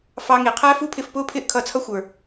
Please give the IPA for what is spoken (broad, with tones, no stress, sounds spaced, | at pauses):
f ɑ˧ ŋ i˩ qʰ æ˥ f u˥ pʰ ɪ˧ f p ʊː˥ pʰ ɪː˥ ʔ kʰ ʌː˧ t͡sʰ ʌ˥ xʷ ə˞˩